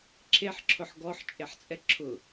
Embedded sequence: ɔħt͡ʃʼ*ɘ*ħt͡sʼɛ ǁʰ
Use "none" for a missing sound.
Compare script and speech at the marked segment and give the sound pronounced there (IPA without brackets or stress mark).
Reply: e